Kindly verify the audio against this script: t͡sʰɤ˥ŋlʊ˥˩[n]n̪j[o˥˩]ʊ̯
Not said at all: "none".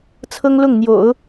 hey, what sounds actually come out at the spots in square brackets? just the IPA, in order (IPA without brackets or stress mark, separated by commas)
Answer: ŋ, o̰˨˩˦